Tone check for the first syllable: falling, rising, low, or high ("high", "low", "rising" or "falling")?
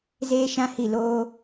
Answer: high